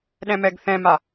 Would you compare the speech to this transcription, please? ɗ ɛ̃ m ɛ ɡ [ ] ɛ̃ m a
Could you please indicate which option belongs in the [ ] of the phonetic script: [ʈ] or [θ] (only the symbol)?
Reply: θ